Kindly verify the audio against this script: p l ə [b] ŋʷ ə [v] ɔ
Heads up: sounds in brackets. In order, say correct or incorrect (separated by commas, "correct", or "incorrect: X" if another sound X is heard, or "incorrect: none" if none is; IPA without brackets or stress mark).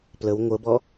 incorrect: w, incorrect: b